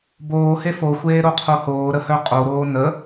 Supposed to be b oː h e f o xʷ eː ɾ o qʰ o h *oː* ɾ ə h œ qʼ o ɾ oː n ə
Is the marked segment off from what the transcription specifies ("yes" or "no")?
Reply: no